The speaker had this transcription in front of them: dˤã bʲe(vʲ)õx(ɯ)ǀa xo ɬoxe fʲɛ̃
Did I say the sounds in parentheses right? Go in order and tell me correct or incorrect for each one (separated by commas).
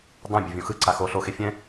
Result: correct, correct